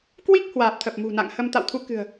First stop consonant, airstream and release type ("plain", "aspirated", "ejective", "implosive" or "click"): plain